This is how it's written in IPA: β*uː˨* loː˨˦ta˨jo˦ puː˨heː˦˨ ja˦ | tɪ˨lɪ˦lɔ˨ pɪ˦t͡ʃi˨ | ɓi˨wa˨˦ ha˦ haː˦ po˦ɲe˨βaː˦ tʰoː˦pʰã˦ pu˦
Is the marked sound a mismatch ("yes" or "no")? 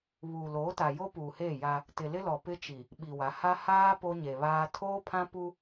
no